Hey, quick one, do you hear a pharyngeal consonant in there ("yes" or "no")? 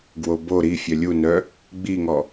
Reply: no